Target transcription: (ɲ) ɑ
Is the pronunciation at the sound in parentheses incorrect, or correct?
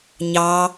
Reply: correct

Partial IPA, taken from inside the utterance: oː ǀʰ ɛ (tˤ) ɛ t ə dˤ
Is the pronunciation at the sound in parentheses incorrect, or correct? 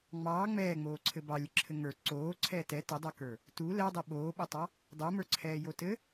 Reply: incorrect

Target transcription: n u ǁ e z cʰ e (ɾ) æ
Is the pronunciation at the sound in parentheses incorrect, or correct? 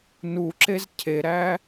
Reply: correct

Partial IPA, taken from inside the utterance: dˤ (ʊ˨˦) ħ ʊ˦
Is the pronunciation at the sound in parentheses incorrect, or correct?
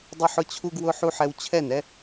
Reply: incorrect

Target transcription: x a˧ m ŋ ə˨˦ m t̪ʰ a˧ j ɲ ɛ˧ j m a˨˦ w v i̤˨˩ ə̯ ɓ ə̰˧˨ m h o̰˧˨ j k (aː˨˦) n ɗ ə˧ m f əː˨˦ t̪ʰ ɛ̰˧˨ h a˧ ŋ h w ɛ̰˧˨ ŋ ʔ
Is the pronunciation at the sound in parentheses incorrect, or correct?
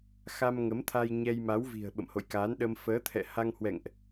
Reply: correct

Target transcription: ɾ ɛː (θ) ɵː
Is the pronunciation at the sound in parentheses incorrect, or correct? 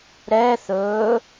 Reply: correct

